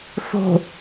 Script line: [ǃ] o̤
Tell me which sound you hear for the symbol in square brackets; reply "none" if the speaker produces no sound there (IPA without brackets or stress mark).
θ